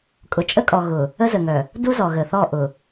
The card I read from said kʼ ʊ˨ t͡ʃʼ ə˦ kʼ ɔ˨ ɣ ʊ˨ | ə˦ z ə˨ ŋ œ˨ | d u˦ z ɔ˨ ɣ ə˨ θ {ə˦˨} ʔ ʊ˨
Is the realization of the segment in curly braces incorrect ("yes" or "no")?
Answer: yes